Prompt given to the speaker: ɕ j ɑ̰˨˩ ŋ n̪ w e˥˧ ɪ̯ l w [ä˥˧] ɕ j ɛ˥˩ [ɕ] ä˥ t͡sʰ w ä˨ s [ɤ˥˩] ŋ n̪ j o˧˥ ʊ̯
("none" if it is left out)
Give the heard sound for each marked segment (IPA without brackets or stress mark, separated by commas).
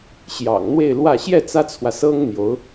ä˥˧, t͡s, ɤ˥